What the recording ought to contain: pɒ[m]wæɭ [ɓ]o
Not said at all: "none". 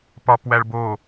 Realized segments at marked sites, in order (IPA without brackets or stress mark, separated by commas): p, b